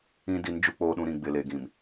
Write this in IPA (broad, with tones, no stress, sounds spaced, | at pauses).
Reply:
ĩ˦ d i˨˦ n d͡ʒ u˨ k͡p oː˨ ɗ ũ˨ ɾ ĩ˨ ɡ͡b ɪ˨ l e˨ ɡ ĩ˨ m